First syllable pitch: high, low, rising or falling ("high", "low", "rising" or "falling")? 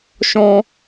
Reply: high